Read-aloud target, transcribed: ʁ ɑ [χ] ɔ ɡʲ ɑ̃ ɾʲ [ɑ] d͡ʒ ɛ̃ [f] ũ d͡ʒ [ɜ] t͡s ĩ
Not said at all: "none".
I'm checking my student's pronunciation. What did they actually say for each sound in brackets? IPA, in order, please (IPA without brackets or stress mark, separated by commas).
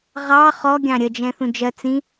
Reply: χ, ə, θ, ɜ